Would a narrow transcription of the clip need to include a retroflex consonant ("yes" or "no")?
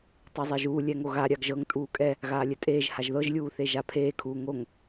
no